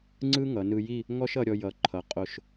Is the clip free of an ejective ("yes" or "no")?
no